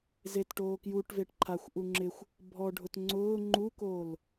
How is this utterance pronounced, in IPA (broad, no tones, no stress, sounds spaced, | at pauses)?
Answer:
z e t ʈ oː k j u ʈ v e ʈ ǃʰ a xʷ ʔ u ŋ͡ǁ ɪ xʷ | bʱ ɔ ɖʱ ʊ t ŋ͡ǀ ʊː ŋ͡ǃ u k oː l